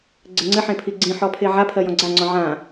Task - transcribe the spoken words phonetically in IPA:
ɡ͡ǀɘŋ͡ǀɘħẽpʰi ɡ͡ǀĩħɔ pʰeʕapʰɜ jɔ̃ɡ͡ǀa ŋ͡ǀɔ̃ʕã

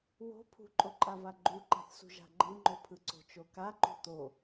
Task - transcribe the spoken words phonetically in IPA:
wo̤ pʰṳǃʼoǃʼava ɡ͡ǃuǃa̤θsṳ ʒa̤ɡ͡ǃɯŋ͡ǃopʰɯ ǀo̤t͡ʃokaǃṳ t̪o

